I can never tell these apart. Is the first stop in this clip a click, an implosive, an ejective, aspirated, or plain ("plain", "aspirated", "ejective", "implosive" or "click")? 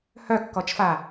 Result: plain